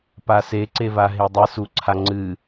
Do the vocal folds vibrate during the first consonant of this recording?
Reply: no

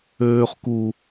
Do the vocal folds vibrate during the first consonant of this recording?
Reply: no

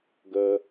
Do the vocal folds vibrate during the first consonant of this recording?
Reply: yes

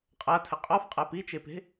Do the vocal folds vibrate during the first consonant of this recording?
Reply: no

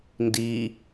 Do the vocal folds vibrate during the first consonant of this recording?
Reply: yes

